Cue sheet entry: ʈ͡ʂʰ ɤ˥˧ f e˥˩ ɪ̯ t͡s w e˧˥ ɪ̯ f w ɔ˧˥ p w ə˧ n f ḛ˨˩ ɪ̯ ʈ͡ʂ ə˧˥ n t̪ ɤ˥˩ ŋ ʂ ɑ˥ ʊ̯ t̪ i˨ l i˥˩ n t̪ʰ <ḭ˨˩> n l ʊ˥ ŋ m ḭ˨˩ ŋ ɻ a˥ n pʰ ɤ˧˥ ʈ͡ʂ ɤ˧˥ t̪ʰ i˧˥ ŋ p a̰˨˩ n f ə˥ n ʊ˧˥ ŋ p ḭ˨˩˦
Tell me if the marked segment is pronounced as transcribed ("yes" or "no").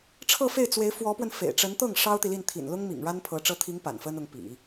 yes